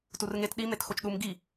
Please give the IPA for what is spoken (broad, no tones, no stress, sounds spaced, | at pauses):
t u r ŋ e t ɗ i m e t x o t͡ʃ ɗ u m ɡ i